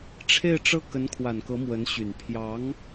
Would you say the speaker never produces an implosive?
yes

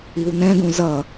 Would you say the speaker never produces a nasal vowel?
no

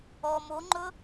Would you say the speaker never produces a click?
no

